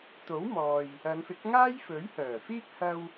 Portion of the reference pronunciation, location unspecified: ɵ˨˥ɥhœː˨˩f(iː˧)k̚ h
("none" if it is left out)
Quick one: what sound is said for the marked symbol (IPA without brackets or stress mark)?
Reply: iː˥